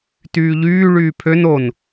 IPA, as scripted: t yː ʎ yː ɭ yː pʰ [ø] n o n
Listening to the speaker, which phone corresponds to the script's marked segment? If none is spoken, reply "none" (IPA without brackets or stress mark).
ø